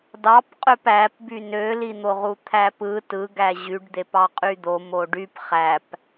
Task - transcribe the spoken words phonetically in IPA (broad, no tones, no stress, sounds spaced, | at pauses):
d ɑ p qʼ ø p æ p b y n ø l i n̪ o ʁ u t̪ʰ æ p ɯ t ɯ ɡ æ ʑ y ɖ d̪ e p ɑ qʼ y d̪ o m o ɖ y p χ æ p